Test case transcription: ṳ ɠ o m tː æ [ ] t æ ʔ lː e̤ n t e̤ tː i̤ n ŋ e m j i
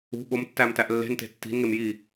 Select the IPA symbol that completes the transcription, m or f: m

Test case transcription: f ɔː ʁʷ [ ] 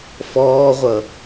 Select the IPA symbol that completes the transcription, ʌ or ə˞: ʌ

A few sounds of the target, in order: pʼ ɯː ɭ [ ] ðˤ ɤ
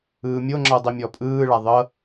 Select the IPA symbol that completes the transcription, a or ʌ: a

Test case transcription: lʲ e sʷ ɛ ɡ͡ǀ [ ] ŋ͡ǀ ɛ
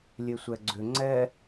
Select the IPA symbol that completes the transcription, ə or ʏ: ʏ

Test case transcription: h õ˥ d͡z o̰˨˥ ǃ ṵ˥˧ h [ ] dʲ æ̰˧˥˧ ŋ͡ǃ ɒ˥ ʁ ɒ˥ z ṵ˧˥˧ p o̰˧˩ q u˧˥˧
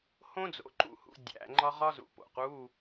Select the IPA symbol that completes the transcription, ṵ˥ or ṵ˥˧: ṵ˥˧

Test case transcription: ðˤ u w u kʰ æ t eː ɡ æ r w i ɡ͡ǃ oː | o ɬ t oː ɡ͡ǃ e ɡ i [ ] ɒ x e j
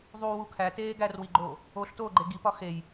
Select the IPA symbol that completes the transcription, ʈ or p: p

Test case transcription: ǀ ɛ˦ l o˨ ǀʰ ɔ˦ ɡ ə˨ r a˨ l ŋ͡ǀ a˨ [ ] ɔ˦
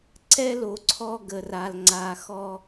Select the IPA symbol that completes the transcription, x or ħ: x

